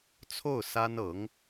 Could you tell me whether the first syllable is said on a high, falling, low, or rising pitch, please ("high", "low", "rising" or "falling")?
falling